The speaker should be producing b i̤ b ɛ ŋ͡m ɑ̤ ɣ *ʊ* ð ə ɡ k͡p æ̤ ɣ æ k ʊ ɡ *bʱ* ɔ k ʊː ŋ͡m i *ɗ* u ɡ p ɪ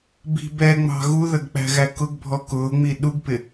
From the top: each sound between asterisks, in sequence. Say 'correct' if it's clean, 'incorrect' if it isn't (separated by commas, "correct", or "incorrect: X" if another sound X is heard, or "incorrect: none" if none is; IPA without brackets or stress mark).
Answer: incorrect: u, correct, correct